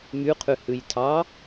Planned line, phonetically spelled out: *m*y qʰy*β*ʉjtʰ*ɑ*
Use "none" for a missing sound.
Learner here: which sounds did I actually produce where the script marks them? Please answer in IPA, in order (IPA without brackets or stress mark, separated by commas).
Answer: m, h, ɑ